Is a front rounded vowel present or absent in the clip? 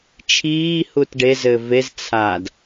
absent